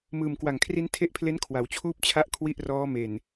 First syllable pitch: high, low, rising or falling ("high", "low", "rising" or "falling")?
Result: low